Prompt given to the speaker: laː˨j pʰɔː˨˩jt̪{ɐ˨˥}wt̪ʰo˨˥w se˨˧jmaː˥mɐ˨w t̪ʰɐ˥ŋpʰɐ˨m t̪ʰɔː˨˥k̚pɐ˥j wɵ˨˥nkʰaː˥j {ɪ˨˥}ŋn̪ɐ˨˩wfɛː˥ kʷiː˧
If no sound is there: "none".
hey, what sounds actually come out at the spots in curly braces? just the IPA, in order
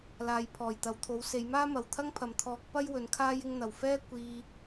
ɐ˨, ɪ˧

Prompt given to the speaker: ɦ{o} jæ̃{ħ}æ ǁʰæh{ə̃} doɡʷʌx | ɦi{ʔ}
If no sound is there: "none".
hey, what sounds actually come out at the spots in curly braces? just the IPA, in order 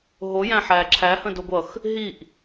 o, ħ, ə̃, ʔ

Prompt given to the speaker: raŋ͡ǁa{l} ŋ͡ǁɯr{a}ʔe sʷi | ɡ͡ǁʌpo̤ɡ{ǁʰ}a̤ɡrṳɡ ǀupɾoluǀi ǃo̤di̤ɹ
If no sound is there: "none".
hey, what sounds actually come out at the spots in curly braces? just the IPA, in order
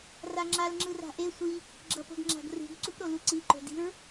l, a̤, ŋ͡ǁ

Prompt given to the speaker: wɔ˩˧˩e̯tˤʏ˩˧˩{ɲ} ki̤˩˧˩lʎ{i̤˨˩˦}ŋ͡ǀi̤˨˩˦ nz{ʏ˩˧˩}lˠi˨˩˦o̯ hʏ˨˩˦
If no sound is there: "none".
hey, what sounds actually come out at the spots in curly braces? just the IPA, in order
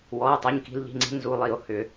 ɲ, i̤˩˧˩, u˩˧˩

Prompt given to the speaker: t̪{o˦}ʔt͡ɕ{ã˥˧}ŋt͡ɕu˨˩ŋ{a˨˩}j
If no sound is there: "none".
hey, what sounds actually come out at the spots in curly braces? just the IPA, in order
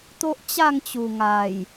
o˦, a˥˧, a˨˩

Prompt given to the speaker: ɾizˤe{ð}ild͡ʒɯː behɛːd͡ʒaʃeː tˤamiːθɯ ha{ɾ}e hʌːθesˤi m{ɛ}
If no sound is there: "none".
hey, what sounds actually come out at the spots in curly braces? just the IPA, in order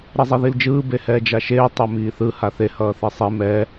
ð, θ, ɛ

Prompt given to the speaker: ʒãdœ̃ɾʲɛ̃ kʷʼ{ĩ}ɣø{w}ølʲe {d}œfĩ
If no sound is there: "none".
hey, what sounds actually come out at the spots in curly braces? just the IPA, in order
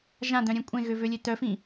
ẽ, v, t

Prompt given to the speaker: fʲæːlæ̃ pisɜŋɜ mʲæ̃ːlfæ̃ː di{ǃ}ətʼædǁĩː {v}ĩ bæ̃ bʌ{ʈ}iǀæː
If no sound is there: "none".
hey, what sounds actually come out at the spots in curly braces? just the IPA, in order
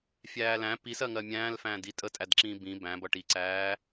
tʼ, b, ʈ

